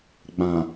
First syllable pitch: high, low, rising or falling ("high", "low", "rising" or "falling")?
low